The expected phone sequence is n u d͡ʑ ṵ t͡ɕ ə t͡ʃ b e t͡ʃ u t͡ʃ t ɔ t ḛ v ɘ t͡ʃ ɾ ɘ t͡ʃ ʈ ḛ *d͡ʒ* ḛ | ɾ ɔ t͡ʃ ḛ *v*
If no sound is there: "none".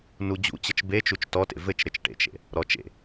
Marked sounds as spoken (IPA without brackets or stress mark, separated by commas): t͡ʃ, none